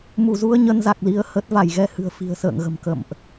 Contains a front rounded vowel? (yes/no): no